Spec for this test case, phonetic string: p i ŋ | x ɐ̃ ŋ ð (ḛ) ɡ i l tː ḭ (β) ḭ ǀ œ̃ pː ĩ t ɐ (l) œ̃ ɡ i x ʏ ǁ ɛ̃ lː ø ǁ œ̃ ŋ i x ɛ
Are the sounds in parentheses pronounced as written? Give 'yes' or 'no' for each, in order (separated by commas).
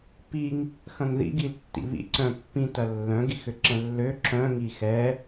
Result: no, yes, no